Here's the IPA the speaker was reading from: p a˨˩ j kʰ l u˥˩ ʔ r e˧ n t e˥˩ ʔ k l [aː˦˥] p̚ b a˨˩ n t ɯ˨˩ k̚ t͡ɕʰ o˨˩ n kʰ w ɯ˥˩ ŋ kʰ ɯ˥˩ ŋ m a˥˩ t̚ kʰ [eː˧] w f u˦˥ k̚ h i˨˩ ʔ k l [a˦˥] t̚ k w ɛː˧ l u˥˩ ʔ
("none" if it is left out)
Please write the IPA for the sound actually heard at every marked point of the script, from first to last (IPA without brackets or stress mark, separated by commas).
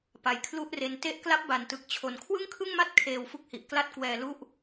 a˦˥, eː˧, a˥˩